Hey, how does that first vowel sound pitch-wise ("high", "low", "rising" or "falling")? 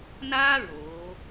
high